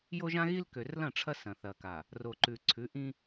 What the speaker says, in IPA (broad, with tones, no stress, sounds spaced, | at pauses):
j o˦ ʒ ã˦ ɣ i˦ l k ø˨ r l ɐ̃˦˨ ʈ͡ʂʰ ɐ˦ s ɐ̃˨ θ ɐ˨ k a˨ | r o˨ ǃ ʉ˨ ǀʰ ʉ˨˦ ʔ ĩ˦